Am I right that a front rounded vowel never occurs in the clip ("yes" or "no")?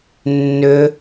no